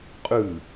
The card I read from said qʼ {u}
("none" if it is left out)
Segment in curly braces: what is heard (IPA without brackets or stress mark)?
ʉ